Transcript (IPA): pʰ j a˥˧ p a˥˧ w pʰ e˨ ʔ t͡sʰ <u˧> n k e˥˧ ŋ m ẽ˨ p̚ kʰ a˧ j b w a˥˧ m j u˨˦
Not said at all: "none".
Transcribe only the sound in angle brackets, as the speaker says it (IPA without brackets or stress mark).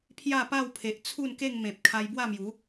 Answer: u˥˧